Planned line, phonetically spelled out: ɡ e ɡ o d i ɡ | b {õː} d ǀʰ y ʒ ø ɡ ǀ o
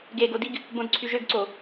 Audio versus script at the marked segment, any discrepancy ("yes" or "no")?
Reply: yes